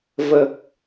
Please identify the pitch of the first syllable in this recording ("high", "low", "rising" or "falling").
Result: low